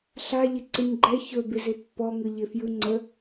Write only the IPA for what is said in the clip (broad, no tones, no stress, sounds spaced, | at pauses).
ɬ a ʎ ɪ ǀ ɨ ɲ ɡ͡ǃ ɛ ç ɵ b ɪ z ɪ pː ɔ ŋ ɯ ʎ ɪ f j ɯ ŋ͡ǀ ə